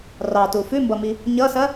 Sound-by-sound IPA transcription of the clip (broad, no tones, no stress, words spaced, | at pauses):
rɑtu fʉmbʌmi | ɲʌsɐ